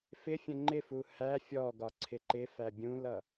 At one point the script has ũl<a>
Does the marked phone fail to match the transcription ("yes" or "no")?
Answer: yes